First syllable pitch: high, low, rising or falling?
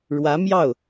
rising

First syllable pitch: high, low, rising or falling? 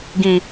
high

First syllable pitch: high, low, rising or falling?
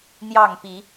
falling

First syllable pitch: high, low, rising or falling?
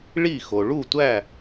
falling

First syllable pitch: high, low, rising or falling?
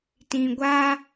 low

